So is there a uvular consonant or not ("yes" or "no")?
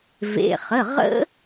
yes